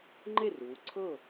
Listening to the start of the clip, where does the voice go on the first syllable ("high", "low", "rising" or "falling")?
falling